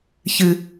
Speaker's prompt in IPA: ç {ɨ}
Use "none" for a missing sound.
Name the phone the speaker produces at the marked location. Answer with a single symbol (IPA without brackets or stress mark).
ɨ